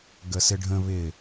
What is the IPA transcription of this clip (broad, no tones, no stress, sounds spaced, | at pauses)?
ɡ ə s ɪ ɖʱ ə̃ β ɪ